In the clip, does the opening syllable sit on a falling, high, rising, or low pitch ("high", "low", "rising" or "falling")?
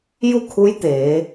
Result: falling